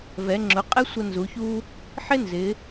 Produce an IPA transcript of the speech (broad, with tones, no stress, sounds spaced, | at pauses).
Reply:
v ɛ˩˧ ŋ͡ǁ ʊ˩˧ qʼ ɛ˥ sʷ ə˧ n z u˩˧ ç u˥ | ħ ɪ˥ n z ɪ˩˧